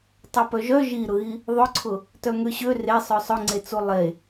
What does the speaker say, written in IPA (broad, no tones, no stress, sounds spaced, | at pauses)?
tˤ ɐ p œ ʒ œ ʒ i ɾ ʊ ɣ i | ðˤ ʊ ǀʰ ʊ | t œ ŋ ø ɕ ø r e sˤ œ sˤ ʊ ŋ͡ǀ e t͡s u lˠ e